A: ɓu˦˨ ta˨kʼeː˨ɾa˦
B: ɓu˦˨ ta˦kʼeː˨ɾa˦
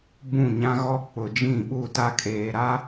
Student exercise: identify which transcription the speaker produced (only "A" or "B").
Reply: B